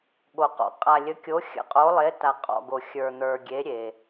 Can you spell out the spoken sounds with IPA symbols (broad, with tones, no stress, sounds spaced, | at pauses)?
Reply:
ɠ o˨ q ɔ̰˨ qʼ a˨ lʲ ə˨˦ kʲ o˨˦ xʲ ə̰˨˦ qʼ o˨˦ lˠ e˨˦ t a˨ qʼ ɔ̰˨ ɡ o˨ xʲ ə˞˨ n̪ ə˞˨ ɡʲ e˨˦ ɾʲ e˨